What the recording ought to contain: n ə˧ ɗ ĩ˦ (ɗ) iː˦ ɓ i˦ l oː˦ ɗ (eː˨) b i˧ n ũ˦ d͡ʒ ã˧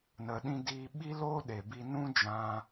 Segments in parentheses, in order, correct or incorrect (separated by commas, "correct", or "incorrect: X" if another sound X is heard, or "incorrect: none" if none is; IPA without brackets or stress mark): incorrect: d, incorrect: e˨